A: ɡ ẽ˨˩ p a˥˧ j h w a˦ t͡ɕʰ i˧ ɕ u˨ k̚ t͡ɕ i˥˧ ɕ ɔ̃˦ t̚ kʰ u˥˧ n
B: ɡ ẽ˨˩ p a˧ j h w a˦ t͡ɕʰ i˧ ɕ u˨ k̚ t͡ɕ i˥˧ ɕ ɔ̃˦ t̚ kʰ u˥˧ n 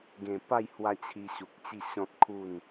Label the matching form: A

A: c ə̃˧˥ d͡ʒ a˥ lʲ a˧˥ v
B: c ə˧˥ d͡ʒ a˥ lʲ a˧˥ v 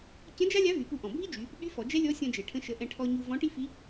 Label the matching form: A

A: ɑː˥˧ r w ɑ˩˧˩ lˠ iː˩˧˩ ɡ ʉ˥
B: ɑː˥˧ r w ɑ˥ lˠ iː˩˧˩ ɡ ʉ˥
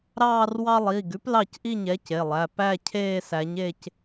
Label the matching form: B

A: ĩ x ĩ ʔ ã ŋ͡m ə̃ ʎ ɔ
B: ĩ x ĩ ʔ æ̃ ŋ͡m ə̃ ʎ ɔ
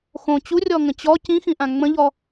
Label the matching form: A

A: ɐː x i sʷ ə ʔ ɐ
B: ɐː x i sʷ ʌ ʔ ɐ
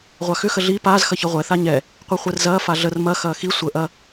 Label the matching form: A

